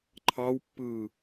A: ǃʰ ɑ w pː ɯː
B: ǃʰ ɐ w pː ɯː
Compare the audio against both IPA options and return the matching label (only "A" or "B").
A